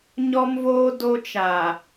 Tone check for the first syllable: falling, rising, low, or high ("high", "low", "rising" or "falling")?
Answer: high